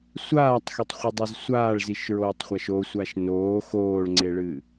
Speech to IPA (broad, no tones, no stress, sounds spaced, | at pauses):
sʷ aː tˤ x e tˤ χʷ ɨ dˤ ɛ z sʷ aː ɭ z i ʃ ɹ oː tˤ χʷ a ʃ o sʷ a ʃ n oː x oː ɭ ŋ͡ǀ e ɭ ɨː